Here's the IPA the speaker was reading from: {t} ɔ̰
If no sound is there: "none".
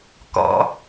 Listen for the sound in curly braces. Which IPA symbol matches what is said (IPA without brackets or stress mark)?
k